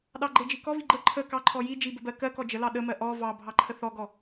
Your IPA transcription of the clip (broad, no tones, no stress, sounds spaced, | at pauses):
ɗ ɑ ɡ͡ǃ e d͡ʒ i k ɔ v i ɡ͡ǃ ə ǃʰ ə k ɑ ǃʰ ɔ j i d͡ʒ i b ə b ɜ k ɜ k ɔ d͡ʒ ə l ɑ ɗ ə m ɜ ʔ ɔ v ɑ bʱ ɑ ǃʰ ə θ ɔ ɡ ɔ